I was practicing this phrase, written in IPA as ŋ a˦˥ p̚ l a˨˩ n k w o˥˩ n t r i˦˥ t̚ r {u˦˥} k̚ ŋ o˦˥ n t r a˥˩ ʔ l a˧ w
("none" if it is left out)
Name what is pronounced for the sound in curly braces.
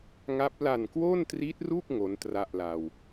u˥˩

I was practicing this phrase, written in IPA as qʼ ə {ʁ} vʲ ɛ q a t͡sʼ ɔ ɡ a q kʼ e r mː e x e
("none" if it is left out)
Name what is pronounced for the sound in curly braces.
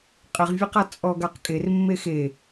ʁ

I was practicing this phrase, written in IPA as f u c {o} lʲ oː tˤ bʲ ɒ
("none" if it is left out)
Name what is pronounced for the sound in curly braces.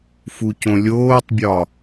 õ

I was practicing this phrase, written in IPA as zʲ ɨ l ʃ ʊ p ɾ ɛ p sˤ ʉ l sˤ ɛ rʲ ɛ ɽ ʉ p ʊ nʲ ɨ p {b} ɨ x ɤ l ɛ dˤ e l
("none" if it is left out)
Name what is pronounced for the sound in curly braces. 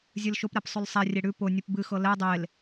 b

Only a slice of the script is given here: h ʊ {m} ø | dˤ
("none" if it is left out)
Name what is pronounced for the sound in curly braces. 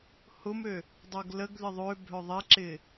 m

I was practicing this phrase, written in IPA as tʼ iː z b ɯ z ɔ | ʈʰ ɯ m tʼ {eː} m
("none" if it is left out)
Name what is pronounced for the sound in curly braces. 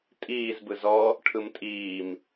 iː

